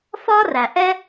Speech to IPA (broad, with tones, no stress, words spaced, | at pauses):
fɒː˥ræ˩ ʔɛ˥